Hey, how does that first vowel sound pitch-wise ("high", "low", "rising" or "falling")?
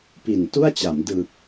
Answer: low